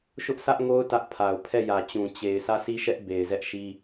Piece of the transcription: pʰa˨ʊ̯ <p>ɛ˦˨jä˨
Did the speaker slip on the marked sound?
yes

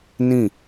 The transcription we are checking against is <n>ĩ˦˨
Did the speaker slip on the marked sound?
no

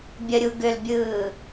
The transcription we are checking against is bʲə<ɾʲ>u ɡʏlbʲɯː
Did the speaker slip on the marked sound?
no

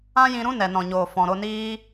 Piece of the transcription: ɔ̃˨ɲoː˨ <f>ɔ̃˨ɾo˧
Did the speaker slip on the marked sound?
no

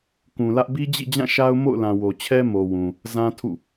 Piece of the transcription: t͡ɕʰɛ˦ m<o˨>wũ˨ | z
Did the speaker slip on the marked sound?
no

